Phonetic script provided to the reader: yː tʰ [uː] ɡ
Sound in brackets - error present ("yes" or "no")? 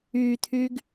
yes